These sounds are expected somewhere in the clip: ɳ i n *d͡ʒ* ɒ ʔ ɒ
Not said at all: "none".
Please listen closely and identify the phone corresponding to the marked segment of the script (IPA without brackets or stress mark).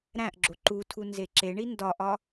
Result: d